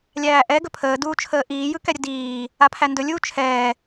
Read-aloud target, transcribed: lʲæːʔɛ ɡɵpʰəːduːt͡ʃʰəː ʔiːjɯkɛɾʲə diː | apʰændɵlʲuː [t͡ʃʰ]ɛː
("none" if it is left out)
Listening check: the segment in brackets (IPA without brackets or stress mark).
t͡ʃʰ